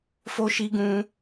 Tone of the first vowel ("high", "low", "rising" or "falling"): high